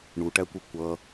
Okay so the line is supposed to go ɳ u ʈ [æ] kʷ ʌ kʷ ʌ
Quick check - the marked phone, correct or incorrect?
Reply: correct